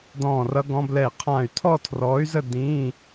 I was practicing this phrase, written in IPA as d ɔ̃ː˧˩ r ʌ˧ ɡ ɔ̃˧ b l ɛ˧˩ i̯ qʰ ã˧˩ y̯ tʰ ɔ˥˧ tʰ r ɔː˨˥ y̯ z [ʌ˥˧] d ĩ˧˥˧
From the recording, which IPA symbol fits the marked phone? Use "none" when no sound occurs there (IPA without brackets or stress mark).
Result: ə˥˧